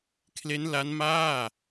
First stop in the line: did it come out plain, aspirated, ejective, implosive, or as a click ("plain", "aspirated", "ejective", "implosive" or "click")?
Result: aspirated